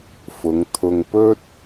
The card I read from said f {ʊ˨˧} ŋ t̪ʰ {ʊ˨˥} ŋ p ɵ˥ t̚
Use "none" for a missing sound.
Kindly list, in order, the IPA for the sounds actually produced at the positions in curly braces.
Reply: ʊ˨˧, ʊ˨

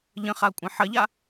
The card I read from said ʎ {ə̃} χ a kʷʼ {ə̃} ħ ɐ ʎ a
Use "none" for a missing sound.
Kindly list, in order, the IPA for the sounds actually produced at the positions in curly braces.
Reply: ə̃, ɐ̃

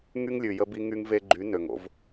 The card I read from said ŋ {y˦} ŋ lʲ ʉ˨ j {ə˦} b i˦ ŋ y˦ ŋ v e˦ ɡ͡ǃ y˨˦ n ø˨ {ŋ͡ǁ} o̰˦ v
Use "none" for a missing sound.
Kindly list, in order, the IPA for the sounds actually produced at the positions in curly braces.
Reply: y˦, ə˦, ŋ

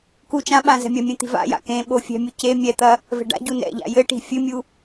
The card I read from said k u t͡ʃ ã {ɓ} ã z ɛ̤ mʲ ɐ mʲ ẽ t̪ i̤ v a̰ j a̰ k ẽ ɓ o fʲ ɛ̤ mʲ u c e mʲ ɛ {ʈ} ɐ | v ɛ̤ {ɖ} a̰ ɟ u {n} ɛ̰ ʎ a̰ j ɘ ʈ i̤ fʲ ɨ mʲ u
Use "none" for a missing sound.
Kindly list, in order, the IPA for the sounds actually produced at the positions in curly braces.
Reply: ɓ, t̪, ɖ, n

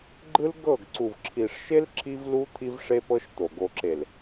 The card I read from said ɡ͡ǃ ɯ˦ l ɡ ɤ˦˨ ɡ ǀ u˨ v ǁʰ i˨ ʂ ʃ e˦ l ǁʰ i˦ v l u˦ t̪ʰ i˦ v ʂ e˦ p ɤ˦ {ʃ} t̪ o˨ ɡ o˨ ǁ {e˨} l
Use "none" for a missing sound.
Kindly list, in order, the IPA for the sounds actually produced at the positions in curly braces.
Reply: ʃ, e˨

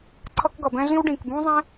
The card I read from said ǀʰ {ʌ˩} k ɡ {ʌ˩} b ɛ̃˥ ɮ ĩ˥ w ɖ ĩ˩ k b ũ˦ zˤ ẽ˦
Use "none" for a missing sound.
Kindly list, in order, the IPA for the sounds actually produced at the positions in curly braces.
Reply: ʌ˦, ʌ˩

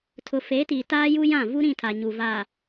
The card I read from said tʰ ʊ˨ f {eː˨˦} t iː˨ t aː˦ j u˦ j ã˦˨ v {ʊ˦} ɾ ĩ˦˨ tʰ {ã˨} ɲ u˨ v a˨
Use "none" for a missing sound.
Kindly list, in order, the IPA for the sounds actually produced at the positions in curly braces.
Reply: eː˨˦, u˦, a˨

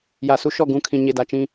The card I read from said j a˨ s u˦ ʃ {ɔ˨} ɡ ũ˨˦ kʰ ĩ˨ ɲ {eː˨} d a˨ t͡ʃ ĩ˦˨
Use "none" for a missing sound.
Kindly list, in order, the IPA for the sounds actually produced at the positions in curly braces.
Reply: ɔ˦˨, e˨

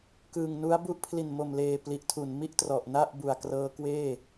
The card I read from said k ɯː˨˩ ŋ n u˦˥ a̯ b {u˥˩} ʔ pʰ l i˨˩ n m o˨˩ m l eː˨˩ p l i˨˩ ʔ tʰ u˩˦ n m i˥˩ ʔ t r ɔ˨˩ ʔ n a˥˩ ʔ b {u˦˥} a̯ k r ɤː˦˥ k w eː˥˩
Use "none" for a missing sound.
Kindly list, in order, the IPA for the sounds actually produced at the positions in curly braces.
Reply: u˦˥, u˨˩

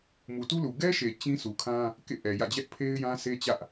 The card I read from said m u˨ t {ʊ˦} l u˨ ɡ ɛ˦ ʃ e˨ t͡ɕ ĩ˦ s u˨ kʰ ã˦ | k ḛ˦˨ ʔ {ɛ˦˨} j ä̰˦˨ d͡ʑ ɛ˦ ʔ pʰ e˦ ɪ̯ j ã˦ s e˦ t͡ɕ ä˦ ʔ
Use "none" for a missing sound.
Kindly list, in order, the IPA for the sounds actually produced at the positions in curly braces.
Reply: u˦, ɛ˨

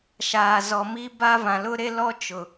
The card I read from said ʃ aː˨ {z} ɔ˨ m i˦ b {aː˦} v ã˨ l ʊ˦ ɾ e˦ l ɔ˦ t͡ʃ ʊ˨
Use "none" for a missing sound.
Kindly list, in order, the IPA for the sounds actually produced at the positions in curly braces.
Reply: z, a˦

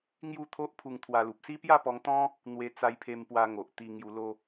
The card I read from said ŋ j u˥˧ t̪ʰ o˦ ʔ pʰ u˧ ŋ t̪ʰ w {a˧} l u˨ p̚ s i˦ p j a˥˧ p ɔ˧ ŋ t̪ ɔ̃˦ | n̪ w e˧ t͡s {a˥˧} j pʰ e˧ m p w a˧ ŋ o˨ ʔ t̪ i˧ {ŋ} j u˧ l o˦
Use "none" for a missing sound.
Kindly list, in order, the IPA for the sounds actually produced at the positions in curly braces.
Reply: a˧, a˧, ŋ

